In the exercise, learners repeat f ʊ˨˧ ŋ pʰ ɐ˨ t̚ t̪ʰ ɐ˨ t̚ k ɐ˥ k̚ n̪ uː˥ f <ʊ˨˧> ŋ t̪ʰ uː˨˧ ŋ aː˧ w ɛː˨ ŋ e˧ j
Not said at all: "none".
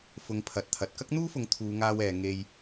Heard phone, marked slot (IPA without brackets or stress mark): ʊ˨˧